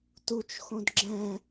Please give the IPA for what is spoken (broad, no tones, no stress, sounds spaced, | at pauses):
t u t͡ʃ x õ d ɡ͡ǁ ɛ̃